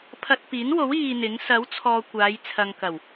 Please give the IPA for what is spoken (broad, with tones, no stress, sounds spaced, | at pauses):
pʰ ɐ˧ t̚ p iː˨˥ n w o˨˥ w iː˧ n̪ ɪ˨˥ ŋ s ɐ˨˥ w t͡sʰ ɔː˨ kʷ aː˨˧ j t͡sʰ ɐ˨ ŋ k ɐ˨˩ w